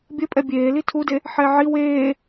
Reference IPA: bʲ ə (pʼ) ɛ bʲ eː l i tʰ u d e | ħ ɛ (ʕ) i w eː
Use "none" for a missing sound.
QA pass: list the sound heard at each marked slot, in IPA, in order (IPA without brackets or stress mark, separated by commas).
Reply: pʼ, ʕ